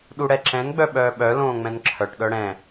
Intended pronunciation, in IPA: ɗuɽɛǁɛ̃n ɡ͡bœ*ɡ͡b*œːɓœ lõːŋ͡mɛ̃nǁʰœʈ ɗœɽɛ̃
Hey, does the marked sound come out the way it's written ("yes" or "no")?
no